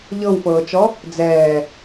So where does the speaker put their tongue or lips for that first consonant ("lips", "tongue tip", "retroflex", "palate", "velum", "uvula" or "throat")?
palate